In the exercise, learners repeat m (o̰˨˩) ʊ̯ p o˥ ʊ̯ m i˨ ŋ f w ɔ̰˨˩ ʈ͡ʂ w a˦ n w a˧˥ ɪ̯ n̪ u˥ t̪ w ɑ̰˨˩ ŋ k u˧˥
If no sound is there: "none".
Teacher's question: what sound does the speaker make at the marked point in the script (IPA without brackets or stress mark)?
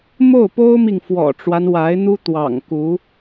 o˥˩